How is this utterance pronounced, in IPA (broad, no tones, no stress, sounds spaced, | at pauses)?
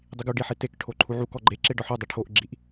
dˤ i ɡ u ɖ i ħ i t e k ʈʰ o ǃʰ u ʕ u k ɔ ɡ͡ǃ e ǁ e ɖ ɒ ħ o dˤ i ʈʰ o ʔ ɡ͡ǁ i ʔ